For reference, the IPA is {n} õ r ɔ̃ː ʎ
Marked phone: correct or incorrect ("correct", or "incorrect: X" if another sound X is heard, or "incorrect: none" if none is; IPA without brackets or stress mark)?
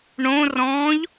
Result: incorrect: ɳ